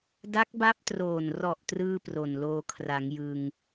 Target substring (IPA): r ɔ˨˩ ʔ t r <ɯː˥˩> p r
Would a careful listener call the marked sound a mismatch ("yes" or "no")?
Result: no